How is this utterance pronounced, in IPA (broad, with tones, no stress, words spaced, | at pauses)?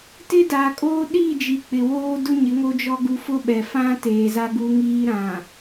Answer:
tɪ˦daː˨kʼoː˦ ɗiː˦˨ d͡ʒi˨ k͡pɪ˨woː˦ dʊ˦ɲɪ˨˦ ŋo˦d͡ʒɔ˦ɡu˦ fʊ˦ɓɛ˨fã˦ teː˨za˦ɡu˦ŋiː˦ ɾã˨